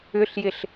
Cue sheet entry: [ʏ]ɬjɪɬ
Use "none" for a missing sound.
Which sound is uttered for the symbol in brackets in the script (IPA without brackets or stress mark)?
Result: ʏ